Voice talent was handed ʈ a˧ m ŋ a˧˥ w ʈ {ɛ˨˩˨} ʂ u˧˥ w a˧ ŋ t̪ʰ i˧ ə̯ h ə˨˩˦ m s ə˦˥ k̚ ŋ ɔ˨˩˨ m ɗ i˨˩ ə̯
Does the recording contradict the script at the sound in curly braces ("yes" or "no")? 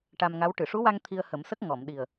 yes